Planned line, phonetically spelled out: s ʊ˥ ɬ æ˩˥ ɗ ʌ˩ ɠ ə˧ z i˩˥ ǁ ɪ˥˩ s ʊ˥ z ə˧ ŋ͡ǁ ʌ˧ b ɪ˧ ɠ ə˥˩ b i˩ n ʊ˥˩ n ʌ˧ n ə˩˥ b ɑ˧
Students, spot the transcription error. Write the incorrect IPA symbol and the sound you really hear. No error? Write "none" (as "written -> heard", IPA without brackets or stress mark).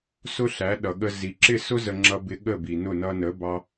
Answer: none